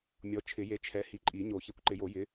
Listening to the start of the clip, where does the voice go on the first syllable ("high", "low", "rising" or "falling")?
rising